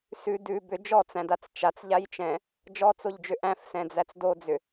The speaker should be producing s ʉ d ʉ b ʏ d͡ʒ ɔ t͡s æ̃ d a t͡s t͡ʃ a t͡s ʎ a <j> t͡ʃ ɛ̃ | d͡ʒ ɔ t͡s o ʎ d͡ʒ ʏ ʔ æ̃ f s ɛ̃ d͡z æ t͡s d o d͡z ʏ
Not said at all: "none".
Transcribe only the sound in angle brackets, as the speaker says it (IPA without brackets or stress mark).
j